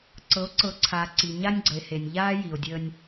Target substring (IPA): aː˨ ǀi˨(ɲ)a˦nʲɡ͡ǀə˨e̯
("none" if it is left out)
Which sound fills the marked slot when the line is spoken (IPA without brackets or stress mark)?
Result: ɲ